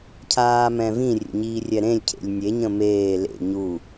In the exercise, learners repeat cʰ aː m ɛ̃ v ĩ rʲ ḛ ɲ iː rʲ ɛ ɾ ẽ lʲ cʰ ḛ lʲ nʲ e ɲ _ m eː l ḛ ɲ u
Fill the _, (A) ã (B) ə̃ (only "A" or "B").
B